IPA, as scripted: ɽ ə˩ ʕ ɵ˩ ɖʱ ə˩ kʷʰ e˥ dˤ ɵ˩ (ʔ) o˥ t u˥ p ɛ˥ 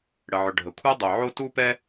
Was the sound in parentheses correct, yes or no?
no